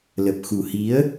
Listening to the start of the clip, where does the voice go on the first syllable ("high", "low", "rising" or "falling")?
low